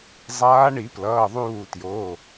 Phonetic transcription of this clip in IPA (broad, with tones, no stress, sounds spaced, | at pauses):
zˤ aː˧˥ ɳ i˨˩˦ p l ʌː˩˧˩ ðˤ uː˧˩ t j oː˩˧˩